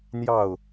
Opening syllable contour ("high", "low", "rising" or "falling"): falling